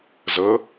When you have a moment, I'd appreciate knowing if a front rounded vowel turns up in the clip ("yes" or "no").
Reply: no